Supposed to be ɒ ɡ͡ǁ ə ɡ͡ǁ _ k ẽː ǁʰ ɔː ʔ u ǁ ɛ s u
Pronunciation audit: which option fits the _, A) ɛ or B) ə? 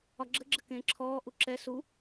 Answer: B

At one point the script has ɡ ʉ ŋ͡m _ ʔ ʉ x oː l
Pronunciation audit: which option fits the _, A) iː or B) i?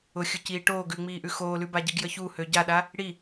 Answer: A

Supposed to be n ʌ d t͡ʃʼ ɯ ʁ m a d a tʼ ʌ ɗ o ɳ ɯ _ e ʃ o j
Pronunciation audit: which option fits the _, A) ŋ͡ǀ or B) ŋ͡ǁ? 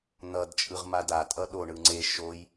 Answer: A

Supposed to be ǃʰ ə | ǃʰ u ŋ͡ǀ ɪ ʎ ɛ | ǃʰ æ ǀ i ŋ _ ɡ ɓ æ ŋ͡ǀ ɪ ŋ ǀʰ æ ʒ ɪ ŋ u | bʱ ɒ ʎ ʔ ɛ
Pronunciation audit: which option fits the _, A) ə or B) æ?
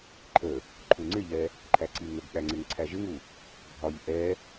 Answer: A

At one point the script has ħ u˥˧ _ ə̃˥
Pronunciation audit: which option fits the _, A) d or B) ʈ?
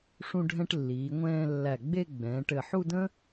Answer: A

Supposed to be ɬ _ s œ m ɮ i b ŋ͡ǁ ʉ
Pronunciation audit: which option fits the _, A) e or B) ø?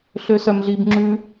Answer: B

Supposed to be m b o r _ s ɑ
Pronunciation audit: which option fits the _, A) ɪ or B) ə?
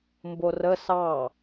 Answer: B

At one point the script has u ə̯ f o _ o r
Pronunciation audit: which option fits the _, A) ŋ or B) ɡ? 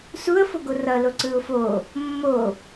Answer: B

